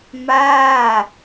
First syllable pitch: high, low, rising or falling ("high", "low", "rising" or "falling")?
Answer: falling